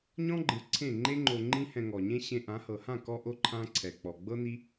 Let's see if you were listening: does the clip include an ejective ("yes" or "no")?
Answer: no